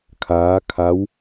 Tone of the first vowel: rising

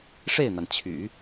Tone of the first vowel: falling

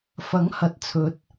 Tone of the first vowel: rising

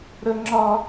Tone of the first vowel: high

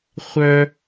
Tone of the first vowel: high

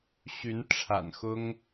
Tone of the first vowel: rising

